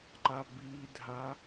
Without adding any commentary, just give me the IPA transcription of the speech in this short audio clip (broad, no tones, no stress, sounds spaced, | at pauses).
ǃ a b i dʱ a